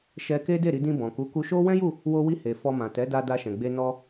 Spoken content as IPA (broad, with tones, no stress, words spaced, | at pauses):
ʃɛ˧ ke˦ de˦˨ɾi˧dĩ˧ bɔ̃˨ku˨˦ku˧ʃo˦ wɛ̃˦ju˦˨ | wo˧wi˧ he˨ fɔ˧mã˨ tɛ˨˦da˧ da˧ʃɛ̃˨ɡ͡be˧ nɔ˦